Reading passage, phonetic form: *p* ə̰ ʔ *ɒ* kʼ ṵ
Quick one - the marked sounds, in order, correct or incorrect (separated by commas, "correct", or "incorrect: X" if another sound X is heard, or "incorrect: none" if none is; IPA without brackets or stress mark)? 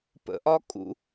correct, correct